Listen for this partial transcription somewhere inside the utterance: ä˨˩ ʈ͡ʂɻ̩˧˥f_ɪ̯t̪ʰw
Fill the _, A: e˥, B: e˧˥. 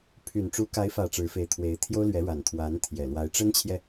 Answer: B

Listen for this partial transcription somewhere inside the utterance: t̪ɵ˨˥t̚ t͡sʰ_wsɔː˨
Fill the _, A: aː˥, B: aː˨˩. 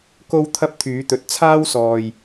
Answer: A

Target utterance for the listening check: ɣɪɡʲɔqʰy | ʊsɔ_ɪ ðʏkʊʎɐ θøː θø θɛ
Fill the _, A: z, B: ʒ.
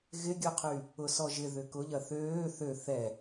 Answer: B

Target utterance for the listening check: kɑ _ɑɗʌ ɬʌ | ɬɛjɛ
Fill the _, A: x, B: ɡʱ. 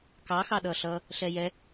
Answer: A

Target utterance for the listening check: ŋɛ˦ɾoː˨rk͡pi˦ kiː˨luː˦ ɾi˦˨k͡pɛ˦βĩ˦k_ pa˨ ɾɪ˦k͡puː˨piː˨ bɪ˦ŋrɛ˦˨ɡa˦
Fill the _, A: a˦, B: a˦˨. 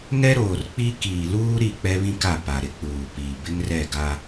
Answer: B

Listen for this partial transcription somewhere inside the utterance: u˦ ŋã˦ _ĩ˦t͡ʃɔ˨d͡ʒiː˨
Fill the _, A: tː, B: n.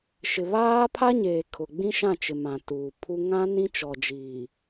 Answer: B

